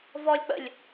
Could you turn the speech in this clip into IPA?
vɔlʲ k͡pə̰lʲ

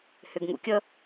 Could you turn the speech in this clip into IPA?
hʏɡŋṵkʲʌ

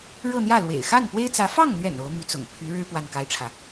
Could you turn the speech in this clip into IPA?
ɻɤ˥˧n̪jä˥˩lwḛ˨˩ɪ̯ xa˥˩npwe˥ɪ̯t͡sä˧˥ fɑ˥˩ŋn̪ɥɛ̰˨˩n o˧˥ʊ̯my˧˥t͡sʊ̰˨˩ŋ pʰy˧˥ɻɻ̩˥ pwa˥˩nka˥ɪ̯ʈ͡ʂʰä˨

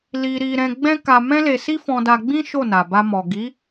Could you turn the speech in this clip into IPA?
li˧ɾi˧ɾɛ̃˧ ɡ͡bɛ̃˦ka˧mɛ̃˦le˧ si˦fɔ̃˧da˧ɡ͡bĩ˦ ʃo˦˨na˨ba˧mɔ˨ ɡi˨˦

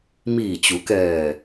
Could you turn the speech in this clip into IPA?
miː˧˩t͡ɕu˩˧kɛː˧˩

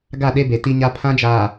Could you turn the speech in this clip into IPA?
ɡa˦˨ɗe˦be˨ ti˦ɲa˦ pʰã˦d͡ʒaː˨

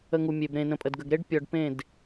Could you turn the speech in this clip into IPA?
ə˧ŋu˨mʲe˨b ɾẽ˨nə̃˨ pʼə˨dɡə˨ɡɾe˦ɖ pʲɔ˨ɖ pẽ˦˨d

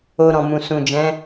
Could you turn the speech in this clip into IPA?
o˧ ɾɔ̃˨mũ˨ sũ˨d͡ʒɛ̃˨˦

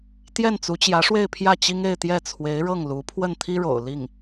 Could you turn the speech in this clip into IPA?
t̪jɛ˥˩nt͡su˧˥t͡ɕjä˧˥ʂwe˥˧ɪ̯ pʰjä˥˩t͡ɕi˥ŋe˥˧ɪ̯t̪jɛ˥˩ t͡sʰwe˧˥ɪ̯ɻɤ˥˩ŋ lu˧˥ pʰwə˥˩nt̪ʰi˥ɻo̰˨˩ʊ̯ li˥˩ŋ

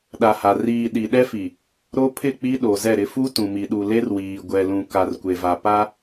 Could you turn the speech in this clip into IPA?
ɗa˨ha˨ riː˨ ɗi˨ ɗɛ˦fi˨ | ɾo˦pʰɪ˦˨k͡pi˦ ɗo˨zɛ˦˨ɾɪ˦ fu˦ tũ˨mi˨ɗu˨ le˦rwiː˨ ɡʷɛ˨lũ˨ ka˨rkʷe˨va˨ pa˦

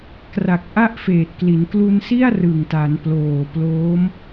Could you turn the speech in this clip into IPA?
kra˨˩k̚ʔa˥˩ʔ feː˨˩t̚kli˩˦n klu˧n si˥˩a̯ rɯ˨˩ŋta˩˦n ploː˨˩ploː˦˥m

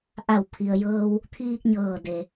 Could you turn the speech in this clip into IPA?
ʔa˧˩wpʰi˩ə̯jɤː˧w | t̪ʰiː˧k̚ɲɤː˧˩de˩

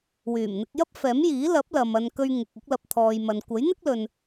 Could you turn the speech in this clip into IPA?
wyː˨˩mn̪ɪ˧k̚ jɐ˥p̚fɛː˨˥mjiː˨˥ lɐ˨˥p̚lɐ˨m ɐ˧n kɵ˧ɥŋɪ˨k̚ ɐ˧k̚lɐ˨p̚ t̪ʰɔː˨jmɐ˨n kʷɐ˨˥jn̪ɪ˥k̚lɵ˨n

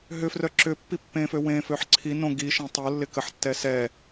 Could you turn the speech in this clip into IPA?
ɦʏfrœ ǁʏ pːipːẽfø wẽføħ ǀʰi nõ ɡi ʃɛ̃tˤolːɪ kəħtːɛ sɛ

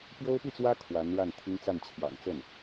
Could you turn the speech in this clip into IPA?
pjo˥ʊ̯pi˥˩t͡swä˥ kʰwa˧˥nɻa˥˩nt̪ʰi˥ŋ t͡sa˥˩nt͡ɕʰjɑ̰˨˩ŋ t͡sə˥˩n

